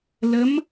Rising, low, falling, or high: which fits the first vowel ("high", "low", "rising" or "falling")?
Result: rising